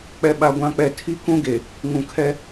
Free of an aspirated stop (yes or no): no